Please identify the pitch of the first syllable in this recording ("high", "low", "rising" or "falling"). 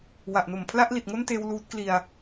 low